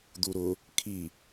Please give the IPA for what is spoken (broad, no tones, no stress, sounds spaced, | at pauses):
d̪ u ɾ ʊ | kʰ i